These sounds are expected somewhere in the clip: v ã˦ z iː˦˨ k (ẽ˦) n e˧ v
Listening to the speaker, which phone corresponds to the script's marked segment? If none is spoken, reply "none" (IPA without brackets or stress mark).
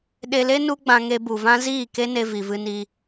e˦